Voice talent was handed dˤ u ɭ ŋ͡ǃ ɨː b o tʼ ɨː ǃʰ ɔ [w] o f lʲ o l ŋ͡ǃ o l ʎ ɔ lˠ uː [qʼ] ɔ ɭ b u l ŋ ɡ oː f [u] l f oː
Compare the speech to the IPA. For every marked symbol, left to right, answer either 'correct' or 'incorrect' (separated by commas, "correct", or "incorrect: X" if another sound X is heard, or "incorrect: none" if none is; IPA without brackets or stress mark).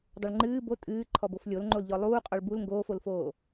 incorrect: b, correct, incorrect: o